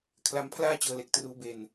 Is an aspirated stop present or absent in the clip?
present